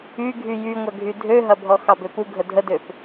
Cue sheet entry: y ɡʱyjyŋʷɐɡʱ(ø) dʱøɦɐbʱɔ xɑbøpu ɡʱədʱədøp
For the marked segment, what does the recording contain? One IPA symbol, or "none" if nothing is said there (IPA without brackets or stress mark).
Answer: y